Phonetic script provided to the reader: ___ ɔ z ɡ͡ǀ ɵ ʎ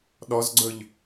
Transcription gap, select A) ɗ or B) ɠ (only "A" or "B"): A